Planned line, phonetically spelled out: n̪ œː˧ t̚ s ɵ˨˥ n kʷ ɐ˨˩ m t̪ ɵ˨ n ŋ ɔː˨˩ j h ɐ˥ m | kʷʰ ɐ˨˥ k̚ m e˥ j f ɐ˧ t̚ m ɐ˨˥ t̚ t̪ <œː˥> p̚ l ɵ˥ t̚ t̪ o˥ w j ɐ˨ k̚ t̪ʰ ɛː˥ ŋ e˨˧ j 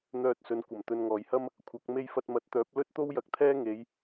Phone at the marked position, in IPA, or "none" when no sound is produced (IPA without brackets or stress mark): œː˨˥